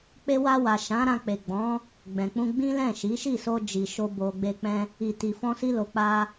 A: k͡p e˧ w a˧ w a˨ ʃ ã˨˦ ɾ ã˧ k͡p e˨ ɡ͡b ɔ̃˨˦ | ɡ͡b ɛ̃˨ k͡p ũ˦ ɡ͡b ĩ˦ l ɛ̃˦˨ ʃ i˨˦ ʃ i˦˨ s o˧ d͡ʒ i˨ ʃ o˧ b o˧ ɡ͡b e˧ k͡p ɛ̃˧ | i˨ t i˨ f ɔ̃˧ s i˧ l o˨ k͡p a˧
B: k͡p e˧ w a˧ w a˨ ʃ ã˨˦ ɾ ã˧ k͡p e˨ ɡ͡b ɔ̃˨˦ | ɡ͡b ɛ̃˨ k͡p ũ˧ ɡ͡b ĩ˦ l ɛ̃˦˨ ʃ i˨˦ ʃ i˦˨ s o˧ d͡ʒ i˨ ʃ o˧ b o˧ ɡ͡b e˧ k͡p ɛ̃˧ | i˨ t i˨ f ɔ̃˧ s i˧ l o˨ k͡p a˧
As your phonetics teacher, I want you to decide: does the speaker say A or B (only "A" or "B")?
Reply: B